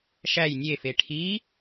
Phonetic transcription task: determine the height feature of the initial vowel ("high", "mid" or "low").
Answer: low